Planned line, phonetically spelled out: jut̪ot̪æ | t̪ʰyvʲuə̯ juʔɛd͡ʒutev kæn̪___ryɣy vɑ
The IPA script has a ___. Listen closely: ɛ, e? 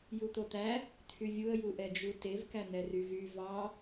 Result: ɛ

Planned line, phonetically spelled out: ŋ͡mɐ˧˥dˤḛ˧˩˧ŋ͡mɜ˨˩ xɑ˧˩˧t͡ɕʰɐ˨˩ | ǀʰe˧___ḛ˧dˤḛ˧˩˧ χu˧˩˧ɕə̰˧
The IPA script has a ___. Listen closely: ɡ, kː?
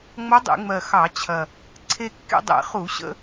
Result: kː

